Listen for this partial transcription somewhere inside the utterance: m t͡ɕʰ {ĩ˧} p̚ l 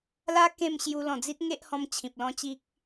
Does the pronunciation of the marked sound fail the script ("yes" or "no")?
yes